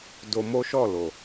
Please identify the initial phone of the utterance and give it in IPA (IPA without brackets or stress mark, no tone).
d